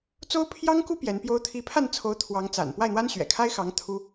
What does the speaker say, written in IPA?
t͡s o˥ ʊ̯ pʰ j ɑ˥ ŋ k u˥ p j ɛ˧˥ n p j o˥ ʊ̯ t̪ʰ i˧˥ pʰ a˥˩ n t͡sʰ o˧˥ ʊ̯ t̪ʰ w ɑ˧˥ ŋ t͡s a̰˨˩ n p w a˥˩ ɪ̯ n̪ w a˥ n ɕ ɥ ɛ̰˨˩ kʰ a˥ ɪ̯ x ɑ˧˥ ŋ t̪ʰ u˥

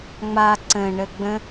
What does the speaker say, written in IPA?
ŋ͡m a ǀ ə̃ ɳ ə ɡ͡b ə̃

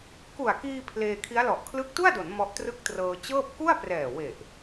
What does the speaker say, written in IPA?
k u˨˩ a̯ k iː˧ pʰ l eː˧ kʰ i˦˥ a̯ l ɔ˨˩ ʔ kʰ l ɯ˦˥ k̚ t u˥˩ a̯ d o˩˦ n m ɔ˦˥ ʔ t r ɯ˥˩ k̚ t r ɤː˧ t͡ɕ ɤː˥˩ p̚ k u˥˩ a̯ p r ɛː˨˩ w e˨˩ ʔ

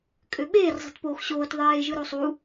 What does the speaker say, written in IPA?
kʼ ø ɓ eː r zˤ i̤ t p oː x ɕ oː t ðˤ eː ʒ ɯ ɾ o sˤ u

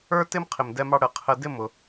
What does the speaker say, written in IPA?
ə˞˦ t ɪ˦ m qʰ ɪ˨ m d ɛ˧ m ɑ˧ ɽ ə˨ qʰ ə˧ d ɪ˦˨ m ʊ˨

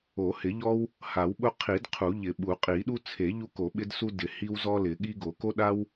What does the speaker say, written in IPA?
o˨˩˦ h ɪ˨˩˦ ʎ ɔ˦ w | h a˨˩˦ w ɓ ʊ˦ qʰ i˨˩˦ d qʰ u˨˩˦ ʎ ɪ˨˩˦ ɓ u˨˩˦ qʼ i˨˩˦ ɗ u˦ t͡sʰ e˨˩˦ ʎ u˦ k o˨˩˦ ɓ ɪ˦ d s u˦ d ɪ˨˩˦ h i˦ w z ɔ˦ l ɪ˨˩˦ ɠ i˦ ɡ o˨˩˦ k o˦ ɗ a˦ w

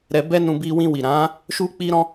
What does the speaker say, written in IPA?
ɾ ɛ˧ b ɛ˦ n ũ˧ b i˧ w ĩ˧ w i˨ ɾ ã˨˦ | ʃ u˦ k͡p i˦ ɾ ɔ̃˦

